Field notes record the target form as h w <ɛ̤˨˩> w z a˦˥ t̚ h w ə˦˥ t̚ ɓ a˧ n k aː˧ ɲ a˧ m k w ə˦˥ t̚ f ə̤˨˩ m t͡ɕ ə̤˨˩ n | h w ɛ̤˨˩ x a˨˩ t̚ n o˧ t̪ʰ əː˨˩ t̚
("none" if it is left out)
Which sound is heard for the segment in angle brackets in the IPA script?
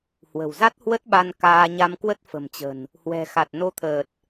ə̤˨˩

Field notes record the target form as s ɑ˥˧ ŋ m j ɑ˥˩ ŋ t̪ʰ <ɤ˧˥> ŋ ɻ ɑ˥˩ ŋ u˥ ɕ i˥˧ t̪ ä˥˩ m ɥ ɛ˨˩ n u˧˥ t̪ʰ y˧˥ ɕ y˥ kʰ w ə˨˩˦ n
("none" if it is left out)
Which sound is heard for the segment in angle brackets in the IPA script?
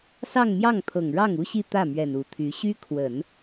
ɤ˨˩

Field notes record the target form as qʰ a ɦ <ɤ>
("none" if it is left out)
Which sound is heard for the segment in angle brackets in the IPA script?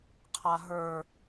ə˞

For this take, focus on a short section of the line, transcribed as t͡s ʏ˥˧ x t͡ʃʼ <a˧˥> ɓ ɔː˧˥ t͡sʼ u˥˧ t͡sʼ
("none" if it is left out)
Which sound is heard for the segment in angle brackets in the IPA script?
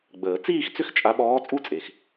a˧˥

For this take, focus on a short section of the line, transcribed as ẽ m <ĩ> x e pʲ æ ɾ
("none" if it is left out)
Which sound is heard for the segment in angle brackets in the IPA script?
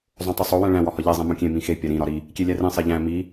ĩ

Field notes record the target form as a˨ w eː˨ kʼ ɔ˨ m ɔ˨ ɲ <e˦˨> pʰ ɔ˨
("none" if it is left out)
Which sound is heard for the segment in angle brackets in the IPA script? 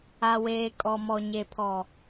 e˨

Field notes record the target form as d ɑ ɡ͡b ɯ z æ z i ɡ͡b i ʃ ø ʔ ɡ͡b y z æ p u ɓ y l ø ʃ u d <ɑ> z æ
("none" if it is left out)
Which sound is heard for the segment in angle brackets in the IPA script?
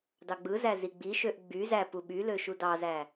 ɑ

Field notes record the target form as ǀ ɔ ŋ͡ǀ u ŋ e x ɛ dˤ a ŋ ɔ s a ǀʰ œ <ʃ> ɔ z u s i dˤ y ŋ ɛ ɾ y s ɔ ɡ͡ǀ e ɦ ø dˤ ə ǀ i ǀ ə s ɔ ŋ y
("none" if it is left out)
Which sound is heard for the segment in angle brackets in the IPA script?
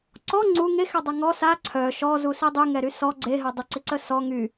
ʃ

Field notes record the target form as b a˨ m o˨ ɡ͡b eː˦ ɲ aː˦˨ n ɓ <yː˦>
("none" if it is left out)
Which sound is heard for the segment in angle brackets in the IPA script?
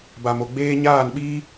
iː˦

